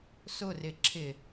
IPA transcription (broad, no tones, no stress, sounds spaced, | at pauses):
s ʊ r ɪ ǁʰ ɪ